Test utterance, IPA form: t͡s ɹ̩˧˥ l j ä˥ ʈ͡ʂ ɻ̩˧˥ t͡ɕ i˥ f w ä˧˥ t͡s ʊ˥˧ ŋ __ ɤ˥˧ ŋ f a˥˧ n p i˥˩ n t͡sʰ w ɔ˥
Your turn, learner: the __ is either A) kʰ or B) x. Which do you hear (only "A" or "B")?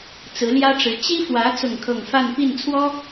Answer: A